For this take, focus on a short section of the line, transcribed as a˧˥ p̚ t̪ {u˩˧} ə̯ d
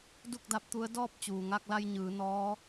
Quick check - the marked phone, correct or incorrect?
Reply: incorrect: u˧˥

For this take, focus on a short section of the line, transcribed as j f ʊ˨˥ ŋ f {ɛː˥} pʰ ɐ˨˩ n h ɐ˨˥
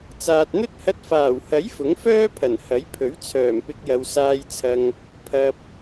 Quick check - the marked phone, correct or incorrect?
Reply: incorrect: œː˥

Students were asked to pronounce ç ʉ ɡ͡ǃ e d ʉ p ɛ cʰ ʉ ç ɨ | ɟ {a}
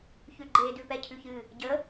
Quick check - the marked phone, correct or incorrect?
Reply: incorrect: ə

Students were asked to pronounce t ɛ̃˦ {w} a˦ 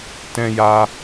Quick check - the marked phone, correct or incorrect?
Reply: incorrect: j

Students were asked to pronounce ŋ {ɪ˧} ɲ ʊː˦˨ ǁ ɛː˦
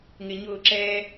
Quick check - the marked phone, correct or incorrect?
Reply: correct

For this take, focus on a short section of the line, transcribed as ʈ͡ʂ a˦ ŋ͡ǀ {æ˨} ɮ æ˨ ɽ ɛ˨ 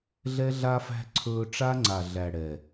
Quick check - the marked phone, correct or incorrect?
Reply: incorrect: a˨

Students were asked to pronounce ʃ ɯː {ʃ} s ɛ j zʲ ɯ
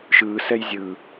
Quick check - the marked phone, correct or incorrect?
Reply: incorrect: none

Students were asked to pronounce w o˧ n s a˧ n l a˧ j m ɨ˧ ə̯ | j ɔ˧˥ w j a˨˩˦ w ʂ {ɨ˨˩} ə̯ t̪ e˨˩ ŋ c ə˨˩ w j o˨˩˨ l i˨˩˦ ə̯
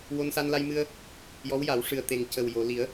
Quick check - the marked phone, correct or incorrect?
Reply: correct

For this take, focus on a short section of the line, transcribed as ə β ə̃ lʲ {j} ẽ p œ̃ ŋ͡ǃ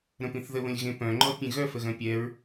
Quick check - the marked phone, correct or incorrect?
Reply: incorrect: ɣ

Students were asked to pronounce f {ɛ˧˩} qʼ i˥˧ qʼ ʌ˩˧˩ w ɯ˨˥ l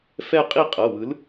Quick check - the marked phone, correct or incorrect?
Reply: incorrect: ɛ˥˧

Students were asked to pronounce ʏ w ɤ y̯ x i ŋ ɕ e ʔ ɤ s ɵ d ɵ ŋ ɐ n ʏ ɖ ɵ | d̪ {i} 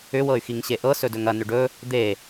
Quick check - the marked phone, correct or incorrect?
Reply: incorrect: e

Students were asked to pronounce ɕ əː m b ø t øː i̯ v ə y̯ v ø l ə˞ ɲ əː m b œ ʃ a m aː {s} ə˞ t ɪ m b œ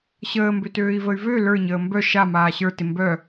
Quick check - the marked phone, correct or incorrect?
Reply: incorrect: ɕ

